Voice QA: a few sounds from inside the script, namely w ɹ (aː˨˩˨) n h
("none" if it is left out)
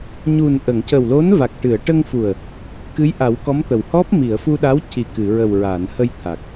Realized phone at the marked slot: aː˨˩˨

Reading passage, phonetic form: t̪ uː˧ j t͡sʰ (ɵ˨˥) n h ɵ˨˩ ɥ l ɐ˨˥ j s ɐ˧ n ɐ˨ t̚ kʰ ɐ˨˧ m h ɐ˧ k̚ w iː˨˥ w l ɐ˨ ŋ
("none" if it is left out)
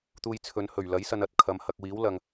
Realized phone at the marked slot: ɵ˨˧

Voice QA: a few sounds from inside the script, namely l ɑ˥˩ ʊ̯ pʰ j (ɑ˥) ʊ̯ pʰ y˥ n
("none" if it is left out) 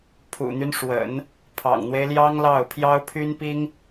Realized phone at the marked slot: ɑ˥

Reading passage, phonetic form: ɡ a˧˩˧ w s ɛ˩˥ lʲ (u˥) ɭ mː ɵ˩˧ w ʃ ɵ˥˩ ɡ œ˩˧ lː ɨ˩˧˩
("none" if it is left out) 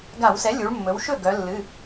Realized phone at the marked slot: u˩˧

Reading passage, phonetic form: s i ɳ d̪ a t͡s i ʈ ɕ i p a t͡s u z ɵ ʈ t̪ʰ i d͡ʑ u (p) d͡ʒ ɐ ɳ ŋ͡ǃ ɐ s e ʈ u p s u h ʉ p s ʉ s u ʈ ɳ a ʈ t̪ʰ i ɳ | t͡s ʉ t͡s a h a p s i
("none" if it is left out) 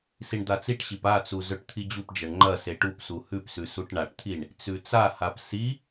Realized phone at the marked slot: p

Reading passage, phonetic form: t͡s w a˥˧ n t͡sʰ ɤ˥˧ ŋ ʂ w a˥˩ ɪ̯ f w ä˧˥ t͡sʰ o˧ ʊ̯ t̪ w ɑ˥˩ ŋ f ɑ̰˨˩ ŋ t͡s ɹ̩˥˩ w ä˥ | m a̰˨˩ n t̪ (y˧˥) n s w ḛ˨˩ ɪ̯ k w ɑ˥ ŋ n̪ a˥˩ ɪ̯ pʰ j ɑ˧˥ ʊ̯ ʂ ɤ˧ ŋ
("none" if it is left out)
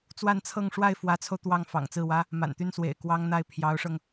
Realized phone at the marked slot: y˥˩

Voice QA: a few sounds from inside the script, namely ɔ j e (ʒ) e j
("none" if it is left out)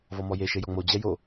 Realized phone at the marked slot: ʃ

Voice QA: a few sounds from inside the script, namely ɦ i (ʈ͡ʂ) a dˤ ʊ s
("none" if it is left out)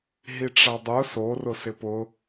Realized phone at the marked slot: ʈ͡ʂ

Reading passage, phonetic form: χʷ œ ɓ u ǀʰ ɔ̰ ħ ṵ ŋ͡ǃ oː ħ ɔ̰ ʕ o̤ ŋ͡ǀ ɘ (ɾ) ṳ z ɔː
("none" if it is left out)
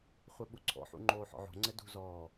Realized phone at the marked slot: d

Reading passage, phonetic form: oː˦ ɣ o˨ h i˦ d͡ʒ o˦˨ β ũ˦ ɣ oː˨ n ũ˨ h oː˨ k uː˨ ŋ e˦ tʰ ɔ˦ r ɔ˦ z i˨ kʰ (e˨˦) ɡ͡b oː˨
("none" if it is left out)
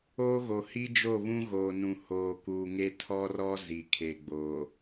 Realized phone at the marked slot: e˨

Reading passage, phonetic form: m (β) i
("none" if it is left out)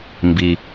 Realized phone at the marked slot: b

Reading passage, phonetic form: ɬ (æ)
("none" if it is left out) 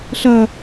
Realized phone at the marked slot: ɐ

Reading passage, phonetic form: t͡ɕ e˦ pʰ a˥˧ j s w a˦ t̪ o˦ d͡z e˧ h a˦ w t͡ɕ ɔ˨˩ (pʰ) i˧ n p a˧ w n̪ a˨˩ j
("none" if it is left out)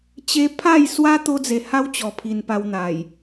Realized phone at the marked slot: pʰ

